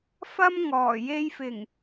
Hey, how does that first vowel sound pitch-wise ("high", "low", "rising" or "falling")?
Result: high